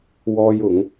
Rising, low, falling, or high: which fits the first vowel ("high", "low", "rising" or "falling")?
high